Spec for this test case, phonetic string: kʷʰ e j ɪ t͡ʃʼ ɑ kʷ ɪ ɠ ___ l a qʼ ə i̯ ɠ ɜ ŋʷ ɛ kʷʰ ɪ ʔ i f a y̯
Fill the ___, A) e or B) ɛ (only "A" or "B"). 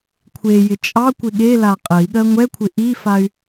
A